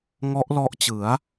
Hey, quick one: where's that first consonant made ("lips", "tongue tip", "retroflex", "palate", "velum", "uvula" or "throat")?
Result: velum